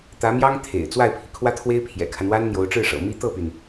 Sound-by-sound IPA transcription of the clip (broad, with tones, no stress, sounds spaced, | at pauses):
t̪ ä˧˥ m j ɑ˥ ŋ t̪ʰ ḛ˨˩ ɪ̯ t͡s w a˥˩ ɪ̯ pʰ i˩ kʰ w ä˥ t̪ʰ w e˥ ɪ̯ pʰ j ɛ̰˨˩ kʰ a˦ n w a˥ n n̪ j o˧˥ ʊ̯ ʈ͡ʂ ɻ̩˥˩ ʂ ɤ̰˨˩ m i˥ t̪ ɤ˥˩ p y˩ n